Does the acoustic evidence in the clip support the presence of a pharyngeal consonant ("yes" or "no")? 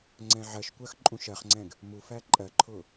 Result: yes